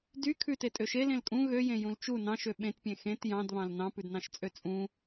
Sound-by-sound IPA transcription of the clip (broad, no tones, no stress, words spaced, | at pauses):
dy kʰʉte tʼøʃe lẽlkʼũ ɣøjẽ jũlt͡ʃu nɑ̃ʃø ɓẽtpʲẽ xẽt jɑ̃dβɑ̃l nɑ̃pʉdnɑ̃ʃt͡sʼø t͡sʼũ